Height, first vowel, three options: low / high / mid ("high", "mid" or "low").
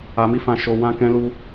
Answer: low